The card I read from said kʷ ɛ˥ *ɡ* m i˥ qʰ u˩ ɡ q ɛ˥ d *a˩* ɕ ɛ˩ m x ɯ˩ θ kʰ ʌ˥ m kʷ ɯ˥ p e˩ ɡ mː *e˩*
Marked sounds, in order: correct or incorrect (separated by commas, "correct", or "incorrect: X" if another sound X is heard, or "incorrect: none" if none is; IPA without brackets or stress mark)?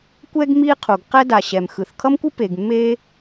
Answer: correct, correct, incorrect: e˥